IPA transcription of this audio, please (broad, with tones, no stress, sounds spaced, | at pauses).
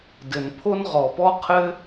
d ɘ˩ n pʰ o˥ n ʁ ɔ˩ p ɔ˥ qʰ ɘ˥